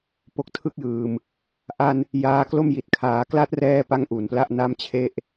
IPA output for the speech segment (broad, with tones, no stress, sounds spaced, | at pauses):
p o˨˩ k̚ tʰ ɯ˦˥ k̚ j ɯː˨˩ m | ʔ a˧ n | j aː˧ k l o˥˩ m j i˨˩ t̚ kʰ aː˩˦ k l a˦˥ t̚ r ɛː˧ p a˧ ŋ ʔ u˩˦ n p l a˥˩ ʔ n a˥˩ m t͡ɕʰ e˥˩ ʔ